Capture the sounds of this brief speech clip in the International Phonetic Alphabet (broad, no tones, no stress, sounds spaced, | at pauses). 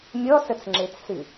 mʲ ɔ s ə t͡s ŋ͡ǁ e t͡s s ɨ